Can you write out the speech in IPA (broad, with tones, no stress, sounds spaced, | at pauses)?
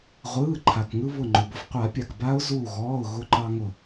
ʁʷ ɯː˩˧˩ ǃʰ a˩ k ŋ ɯ˧ β ʊ˧˩ ŋ͡ǃ ʊ˩ b ʊ˧ f qʷ a˨˩˦ pʲ a˩ k b a˦˥ ʊ̯ z uː˧˩ ɣ ɔː˩˧˩ ʊ̯ ɣ ʊ˧ ǃ ɑ˧ ŋ ʊ˧˩